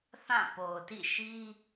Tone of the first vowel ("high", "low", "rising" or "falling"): falling